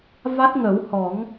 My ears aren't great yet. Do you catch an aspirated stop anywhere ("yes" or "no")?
no